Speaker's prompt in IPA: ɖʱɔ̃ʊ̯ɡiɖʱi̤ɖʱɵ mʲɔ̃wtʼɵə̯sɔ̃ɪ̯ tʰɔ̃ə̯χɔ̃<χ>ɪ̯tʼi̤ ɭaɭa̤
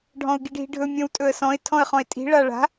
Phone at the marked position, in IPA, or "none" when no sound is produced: none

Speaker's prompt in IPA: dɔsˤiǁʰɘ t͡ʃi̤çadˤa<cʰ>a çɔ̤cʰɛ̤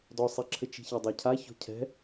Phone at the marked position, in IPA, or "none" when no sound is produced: cʰ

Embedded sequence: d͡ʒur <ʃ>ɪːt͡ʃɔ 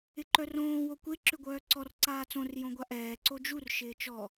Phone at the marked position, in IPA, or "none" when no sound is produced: ʃ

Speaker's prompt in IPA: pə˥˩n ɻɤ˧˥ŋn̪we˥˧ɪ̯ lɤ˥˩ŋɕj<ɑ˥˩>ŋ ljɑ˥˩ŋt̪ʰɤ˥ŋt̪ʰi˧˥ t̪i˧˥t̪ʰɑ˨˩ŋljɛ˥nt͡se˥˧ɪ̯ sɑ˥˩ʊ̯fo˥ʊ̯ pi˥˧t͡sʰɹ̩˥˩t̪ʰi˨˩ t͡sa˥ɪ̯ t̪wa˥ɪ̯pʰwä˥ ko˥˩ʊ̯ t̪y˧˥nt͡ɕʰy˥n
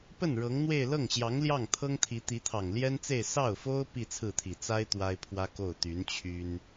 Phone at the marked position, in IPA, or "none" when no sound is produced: ɑ˧˥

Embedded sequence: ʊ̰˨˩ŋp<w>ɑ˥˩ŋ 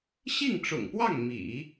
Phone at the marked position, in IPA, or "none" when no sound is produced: w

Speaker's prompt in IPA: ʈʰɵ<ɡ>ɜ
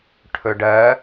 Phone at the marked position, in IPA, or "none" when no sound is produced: ɖ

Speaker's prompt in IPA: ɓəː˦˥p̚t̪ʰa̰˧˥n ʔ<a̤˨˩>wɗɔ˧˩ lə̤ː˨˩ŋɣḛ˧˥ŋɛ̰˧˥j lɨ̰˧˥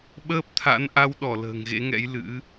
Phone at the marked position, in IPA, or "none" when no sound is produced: a˧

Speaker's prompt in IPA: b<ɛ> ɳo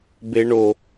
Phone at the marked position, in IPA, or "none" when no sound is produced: e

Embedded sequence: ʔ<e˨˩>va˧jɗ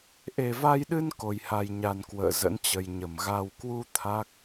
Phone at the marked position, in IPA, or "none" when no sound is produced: e˨˩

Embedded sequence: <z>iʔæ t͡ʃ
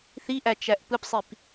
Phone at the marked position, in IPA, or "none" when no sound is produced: θ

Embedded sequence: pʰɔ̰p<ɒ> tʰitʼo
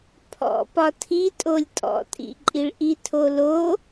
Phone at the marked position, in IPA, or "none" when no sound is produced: ɒ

